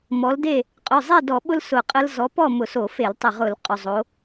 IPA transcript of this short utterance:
mɔ˨˦lde˥˨ | qʼʏ˩˧˩zˤe˥˨dɔ˧˩˧ɓʊ˦l sʊ˧˩qʼə˦l zɔ˨˦pɔ˥˨ mʊ˧˩˧so˧˩˧fe˧˩˧l tˤʏ˧˩ʁʊ˧˩˧l qʼʏ˩˧˩zˤo˨˦

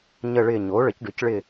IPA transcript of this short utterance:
ɲə˦˨ɭɪ˦˨ ɲo˩˥ɭə˩˥cɖʏ˩˥cɭɪ˦˨

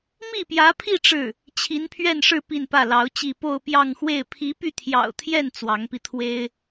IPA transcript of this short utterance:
mi˥˩pjä˧˥pʰi˥˧ ʈ͡ʂɻ̩˥˩ | t͡ɕʰi˧˥npʰɥɛ˥˧nʂɻ̩˥˧ pi˥˧npä˥˩lɑ˧˥ʊ̯t͡ɕi˥˧ po˥˧ʊ̯pjɑ˥˧ŋxwe˥˩ɪ̯ pʰi˧˥py˥˩t̪ʰjɑ̰˨˩ʊ̯t̪ʰjɛ˥˩n t͡swɑ˧˥ŋpi˧t̪ʰwe˥ɪ̯

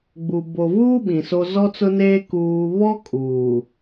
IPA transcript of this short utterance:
ɡ͡bu˨ bo˨vuː˦ ɓĩ˨so˦ zɔ˦t͡sʊ˦neː˦ kuː˦ βɔ˦ kʼuː˨

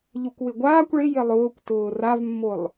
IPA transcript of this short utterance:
ʎukʷwɪɡʷaːkʷ ɭɪje lˠʊːkʷtʊː ravmːolˠ

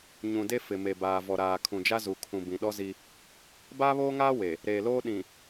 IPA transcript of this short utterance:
ɲũ˨de˦ fɪ˨me˨ baː˨ vɔ˨ɾaː˨ kʰũ˨d͡ʒa˦ zu˨kʰũ˨ bĩ˨ɗɔ˦ zi˦ | baː˦βoː˦ŋaː˦ we˨ | ɾeː˨loː˦ ɗĩ˨

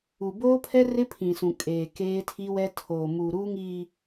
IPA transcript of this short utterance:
u˨boː˦pʰɛ˦ rɪ˦pʰĩ˨sũ˨ kʼeː˨keː˦tʰi˦wɛ˦ tʰoː˨mu˨ ɾuː˦ŋiː˨

